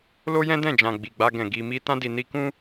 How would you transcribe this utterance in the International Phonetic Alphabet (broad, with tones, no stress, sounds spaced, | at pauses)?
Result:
l o˦ j ɛ̃˦ d ɛ̃˦˨ d͡ʒ ã˨ ɡ͡b i˨ ɡ͡b a˧ ɡ ɛ̃˨ ɡ i˨ m i˧ t ã˧ d i˨ n i˧ k ũ˦